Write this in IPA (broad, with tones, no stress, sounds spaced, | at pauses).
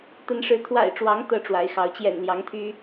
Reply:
t̪ ə˨˦ n ʂ ɻ̩˨˦ t̪ʰ w a̰˨˩ ɪ̯ ʈ͡ʂ w ɑ˨˦ ŋ t̪ ɤ˦ ʈ͡ʂ w a˨˦ ɪ̯ x ɑ˨˦ ʊ̯ t͡ɕ j ɛ̰˨˩ n l j ɑ˨˦ ŋ t̪ʰ y˦